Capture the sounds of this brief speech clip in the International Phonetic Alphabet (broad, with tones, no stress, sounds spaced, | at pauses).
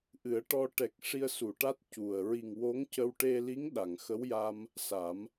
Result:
ʔ ɨ˨˩˦ ə̯ ʈ ɔ˧ ʈ ɛ˨˩ k̚ ʂ i˧ ə̯ s u˨˩˨ ʈ a˦˥ t̚ c u˨˩ ə̯ ɹ i˨˩ ŋ w o˧˥ ŋ c ə˧ w ʈ e˧ l i˧˥ ŋ ɗ a˨˩˨ ŋ x ə˧˥ w j a˧ m | s a˨˩˦ m